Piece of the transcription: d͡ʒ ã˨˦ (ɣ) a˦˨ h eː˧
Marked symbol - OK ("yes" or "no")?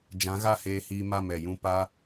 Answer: yes